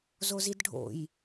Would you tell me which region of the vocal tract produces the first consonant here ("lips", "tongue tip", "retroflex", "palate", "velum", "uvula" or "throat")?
tongue tip